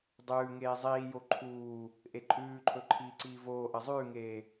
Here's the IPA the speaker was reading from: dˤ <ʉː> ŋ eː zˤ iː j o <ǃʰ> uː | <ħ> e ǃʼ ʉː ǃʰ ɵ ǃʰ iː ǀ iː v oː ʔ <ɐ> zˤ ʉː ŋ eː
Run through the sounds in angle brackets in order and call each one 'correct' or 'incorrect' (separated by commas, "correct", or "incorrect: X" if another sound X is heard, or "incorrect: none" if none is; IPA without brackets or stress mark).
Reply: correct, correct, incorrect: ʔ, correct